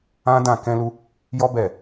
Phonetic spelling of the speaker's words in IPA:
ã˦ d ã˦˨ k ɛ̃˧ l u˧ | j ɔ˦ b ɛ˦˨

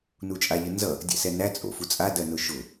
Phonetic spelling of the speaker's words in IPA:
n u t͡ʃʼ a ʎ ə n z ʌ | dʲ ɛ̰ s ɛ n æ t͡sʼ o̰ f u t͡sʼ a d ɜ n ʊ ʃ ʊ

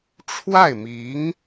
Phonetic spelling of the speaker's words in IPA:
ʈ͡ʂʰ w a˥˩ ɪ̯ m i˧˥ ŋ

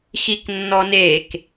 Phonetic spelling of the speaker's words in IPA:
x i k nː ɔ n e k

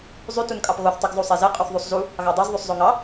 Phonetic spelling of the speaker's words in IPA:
zˤ y t u n kʼ ɑ p ɣ o θ tˤ y ɡ zˤ u sˤ e z e qʼ u θ ðˤ u sˤ z u | ɣ ɑ dˤ ø z ðˤ y sˤ zˤ o ŋ ɑ

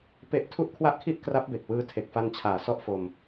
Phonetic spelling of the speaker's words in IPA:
p e˦˥ ʔ tʰ u˥˩ ʔ kʰ w a˥˩ ʔ kʰ i˥˩ ʔ k r a˦˥ p̚ b e˨˩ k̚ w ɯː˧ tʰ e˨˩ k̚ f a˧ n t͡ɕʰ aː˨˩ s ɔ˥˩ ʔ f o˧ m

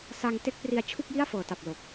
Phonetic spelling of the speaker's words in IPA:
s a˧ ŋ t e˦˥ k̚ p r i˧ a̯ t͡ɕʰ u˥˩ k̚ j i˥˩ a̯ f ɤː˨˩ t a˨˩ p̚ l o˨˩ k̚

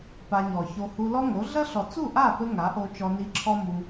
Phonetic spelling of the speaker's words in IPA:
p a˧ ɲ ɔ˨ ç o˧ h u˧ l ɔ˦ ŋ o˨˦ ɮ ɐ˦ ɬ ɔ˨ t͡s u˦˨ ʔ a˦˨ p ɘ˧ ŋ a˨˦ ʔ o˧ t͡ʃ ɔ˧ n i˧ ǁʰ ɔ˦ m u˧

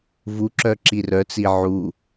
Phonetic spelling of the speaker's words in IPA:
v u ǁ œ ǁ i r œ t͡s i ʕ u

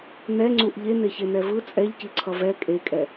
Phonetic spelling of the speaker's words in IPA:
n̪ ɛ ŋ͡ǀ u ʔ ʎ e n̪ e ç e n̪ ɛ v ɯ t͡sʼ ɛ ʎ c i ǀʰ ʌ v ɛ kʼ e kʼ ɛ

